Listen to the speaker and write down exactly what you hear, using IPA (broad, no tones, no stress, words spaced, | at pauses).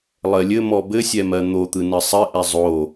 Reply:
lˠɜlʲɘmɔ bɘsʲɛ mɜn̪ot̪ɯ nɘsˤɘʔɛ zˤo